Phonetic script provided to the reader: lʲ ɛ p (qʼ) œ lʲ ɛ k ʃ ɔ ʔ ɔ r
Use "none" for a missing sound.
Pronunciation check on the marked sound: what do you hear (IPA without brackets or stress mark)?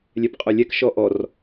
qʼ